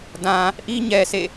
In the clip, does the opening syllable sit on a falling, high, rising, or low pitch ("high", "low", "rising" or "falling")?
low